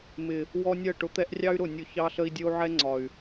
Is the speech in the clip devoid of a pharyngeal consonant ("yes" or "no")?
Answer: no